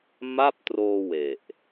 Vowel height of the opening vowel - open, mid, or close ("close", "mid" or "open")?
open